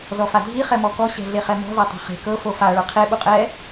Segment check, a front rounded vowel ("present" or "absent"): absent